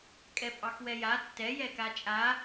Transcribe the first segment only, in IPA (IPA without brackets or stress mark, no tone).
kʼ